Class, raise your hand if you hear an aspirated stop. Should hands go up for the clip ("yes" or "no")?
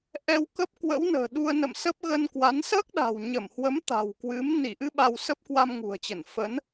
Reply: no